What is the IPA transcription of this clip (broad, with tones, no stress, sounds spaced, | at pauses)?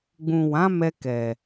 ɡ͡b ũ˨ w ã˨˦ m ɛ˧ k ɛ˨